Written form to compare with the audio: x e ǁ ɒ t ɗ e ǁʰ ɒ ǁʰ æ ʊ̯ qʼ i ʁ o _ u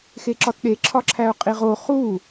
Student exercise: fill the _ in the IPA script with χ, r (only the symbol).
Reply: χ